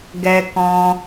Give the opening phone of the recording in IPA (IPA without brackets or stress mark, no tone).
ɡ